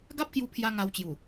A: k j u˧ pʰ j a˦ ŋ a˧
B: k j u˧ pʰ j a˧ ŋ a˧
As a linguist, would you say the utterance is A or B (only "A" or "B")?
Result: B